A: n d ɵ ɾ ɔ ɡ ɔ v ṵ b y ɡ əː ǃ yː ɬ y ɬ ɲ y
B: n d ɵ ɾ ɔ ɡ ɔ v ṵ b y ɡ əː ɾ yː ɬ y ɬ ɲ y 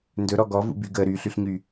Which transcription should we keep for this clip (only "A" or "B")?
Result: B